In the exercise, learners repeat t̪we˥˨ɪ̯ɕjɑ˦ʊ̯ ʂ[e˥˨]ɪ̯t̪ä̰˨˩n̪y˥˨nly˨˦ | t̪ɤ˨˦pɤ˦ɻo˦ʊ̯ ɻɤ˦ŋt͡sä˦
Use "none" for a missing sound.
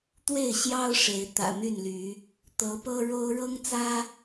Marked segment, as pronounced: e˨˦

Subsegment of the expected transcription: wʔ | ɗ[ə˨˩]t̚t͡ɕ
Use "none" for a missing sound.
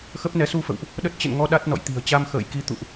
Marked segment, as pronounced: ə˦˥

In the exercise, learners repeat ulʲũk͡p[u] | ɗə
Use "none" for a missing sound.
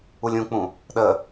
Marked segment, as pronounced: ũ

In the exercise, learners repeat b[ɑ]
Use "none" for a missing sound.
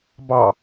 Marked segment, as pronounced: ɑ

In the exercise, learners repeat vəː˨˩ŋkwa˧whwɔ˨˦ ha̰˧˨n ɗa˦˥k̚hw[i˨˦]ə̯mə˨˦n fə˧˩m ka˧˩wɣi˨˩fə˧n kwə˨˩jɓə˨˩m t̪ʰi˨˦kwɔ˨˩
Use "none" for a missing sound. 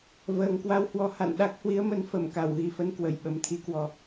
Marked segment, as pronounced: i˨˦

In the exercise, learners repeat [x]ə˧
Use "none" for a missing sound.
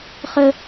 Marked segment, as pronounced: χ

